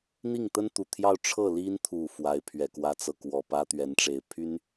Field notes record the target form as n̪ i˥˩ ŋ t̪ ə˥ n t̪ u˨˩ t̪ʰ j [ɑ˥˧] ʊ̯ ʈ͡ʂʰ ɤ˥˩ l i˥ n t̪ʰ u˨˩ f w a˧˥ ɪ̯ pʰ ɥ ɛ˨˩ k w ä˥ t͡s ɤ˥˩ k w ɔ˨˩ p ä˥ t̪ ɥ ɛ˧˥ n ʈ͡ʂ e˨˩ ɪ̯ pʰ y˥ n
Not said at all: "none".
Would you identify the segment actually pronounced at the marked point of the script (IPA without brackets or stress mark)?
ɑ˥˧